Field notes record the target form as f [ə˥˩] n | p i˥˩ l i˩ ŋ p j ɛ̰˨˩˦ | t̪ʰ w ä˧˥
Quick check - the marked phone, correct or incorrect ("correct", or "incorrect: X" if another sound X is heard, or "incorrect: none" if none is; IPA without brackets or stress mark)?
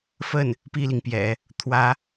correct